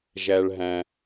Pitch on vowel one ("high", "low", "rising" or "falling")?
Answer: low